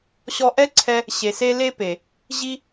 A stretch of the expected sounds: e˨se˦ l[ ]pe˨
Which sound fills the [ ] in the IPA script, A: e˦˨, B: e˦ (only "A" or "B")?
B